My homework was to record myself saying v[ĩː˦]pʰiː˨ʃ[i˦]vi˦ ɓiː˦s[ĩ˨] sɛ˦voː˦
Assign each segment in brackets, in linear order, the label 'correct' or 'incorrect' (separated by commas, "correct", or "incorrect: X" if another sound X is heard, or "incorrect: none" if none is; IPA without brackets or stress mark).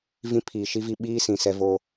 incorrect: ĩ˦, correct, correct